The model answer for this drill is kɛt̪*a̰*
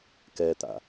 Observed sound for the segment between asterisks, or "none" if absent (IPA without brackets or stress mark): a̰